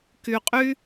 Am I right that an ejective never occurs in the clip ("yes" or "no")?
no